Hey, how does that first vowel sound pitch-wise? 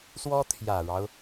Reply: high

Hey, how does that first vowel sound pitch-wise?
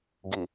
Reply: low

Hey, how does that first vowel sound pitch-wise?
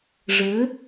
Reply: rising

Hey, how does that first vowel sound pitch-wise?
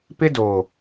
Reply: high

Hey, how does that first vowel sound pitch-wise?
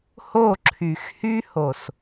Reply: falling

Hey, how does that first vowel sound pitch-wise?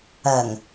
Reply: low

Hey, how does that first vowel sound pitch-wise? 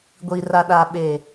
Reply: low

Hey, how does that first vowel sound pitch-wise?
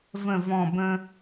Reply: low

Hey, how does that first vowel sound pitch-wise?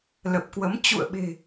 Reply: low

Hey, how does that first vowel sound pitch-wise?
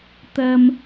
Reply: low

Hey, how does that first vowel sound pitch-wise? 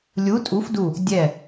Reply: rising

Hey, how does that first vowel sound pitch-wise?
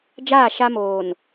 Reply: falling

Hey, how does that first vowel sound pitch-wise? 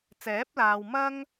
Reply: rising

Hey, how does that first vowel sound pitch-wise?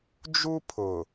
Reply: high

